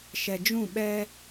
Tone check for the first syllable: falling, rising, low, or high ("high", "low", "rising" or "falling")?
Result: low